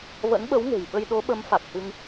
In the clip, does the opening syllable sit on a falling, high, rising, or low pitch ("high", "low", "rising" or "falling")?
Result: rising